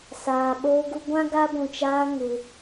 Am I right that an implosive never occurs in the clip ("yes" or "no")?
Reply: no